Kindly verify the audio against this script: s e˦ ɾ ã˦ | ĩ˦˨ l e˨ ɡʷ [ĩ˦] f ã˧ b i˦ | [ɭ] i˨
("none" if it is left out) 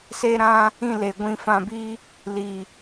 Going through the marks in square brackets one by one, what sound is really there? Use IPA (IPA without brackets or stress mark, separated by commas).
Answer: ĩ˧, l